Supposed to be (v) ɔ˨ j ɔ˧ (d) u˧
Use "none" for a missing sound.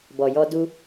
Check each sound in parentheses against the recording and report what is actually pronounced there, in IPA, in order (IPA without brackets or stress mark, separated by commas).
b, d